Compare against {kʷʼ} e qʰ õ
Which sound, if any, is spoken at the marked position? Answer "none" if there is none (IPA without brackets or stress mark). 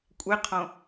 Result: kʷʼ